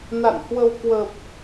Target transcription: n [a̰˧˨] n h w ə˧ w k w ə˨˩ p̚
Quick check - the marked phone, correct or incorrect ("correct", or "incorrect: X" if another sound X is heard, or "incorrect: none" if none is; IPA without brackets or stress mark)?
correct